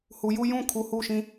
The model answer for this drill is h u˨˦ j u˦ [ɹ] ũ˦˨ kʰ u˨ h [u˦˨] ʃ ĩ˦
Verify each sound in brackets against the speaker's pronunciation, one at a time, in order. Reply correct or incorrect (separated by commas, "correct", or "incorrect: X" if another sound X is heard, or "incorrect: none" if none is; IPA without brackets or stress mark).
incorrect: j, correct